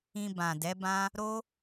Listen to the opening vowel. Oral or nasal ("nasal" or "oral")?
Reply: nasal